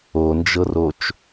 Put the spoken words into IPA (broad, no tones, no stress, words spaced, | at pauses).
ond͡ʒɤrot͡ʃ